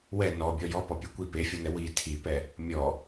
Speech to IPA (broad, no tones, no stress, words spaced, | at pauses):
wɛ nɔbʲɔ jɔpɔpʲɛ kʷi pefʲɔnɛ wi tʰipɛ | mʲɔ